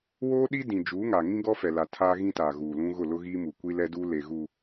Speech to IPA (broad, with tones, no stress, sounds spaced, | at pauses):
w oː˦ ɗ i˦ d ĩ˨ d͡ʒ uː˨˦ ŋ a˨ ŋ ĩ˦ ɡ ɔ˦ f ɛ˨ l a˨ tʰ aː˦ ɣ ĩ˦ t aː˨ ɣ uː˨ l ũ˦ ɣ ʊ˦˨ l ʊ˦ ɣ iː˦ m u˨ kʷ i˦ l ɛ˦ d uː˦ l e˨ ɣ u˨